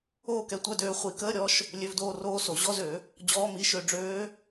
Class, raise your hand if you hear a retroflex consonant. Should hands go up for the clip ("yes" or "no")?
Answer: yes